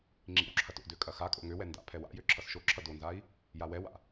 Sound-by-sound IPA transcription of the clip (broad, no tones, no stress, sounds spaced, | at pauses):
ŋ͡ǁ ḭ w ǁʰ ɐ t o̰ d ø kʼ ɐ x a kʼ o̰ ŋ ø w ɛ n d a̰ pʰ ɛ w a̰ j ø ǁʰ ʌ s ʃ o ǁʰ ʌ d o n z a i̯ | j a w ɛ w a̰